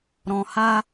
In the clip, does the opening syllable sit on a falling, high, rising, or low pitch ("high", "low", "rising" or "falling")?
low